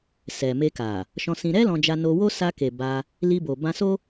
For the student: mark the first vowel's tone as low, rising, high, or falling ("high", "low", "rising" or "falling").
low